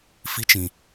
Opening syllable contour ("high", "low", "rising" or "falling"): rising